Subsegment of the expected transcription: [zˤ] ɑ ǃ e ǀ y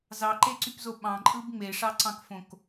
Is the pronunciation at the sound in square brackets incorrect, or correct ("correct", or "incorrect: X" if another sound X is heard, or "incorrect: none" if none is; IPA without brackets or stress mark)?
incorrect: z